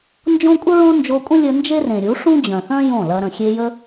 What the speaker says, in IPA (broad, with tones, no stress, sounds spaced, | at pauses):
n d͡ʒ õ˦ kʷʼ ə˦ ɹ õ˦ n d͡ʒ o˧ kʷʼ ə̃˦ lʲ ə˧ n d͡ʒ e˦ r ẽ˨ ɾʲ u˨˦ ʂ ũ˦ d͡ʑ œ̃˨ θ œ̃˦ j õ˦˨ l ɐ˧ ɾ ə̃˨ xʲ e˧ j ə˦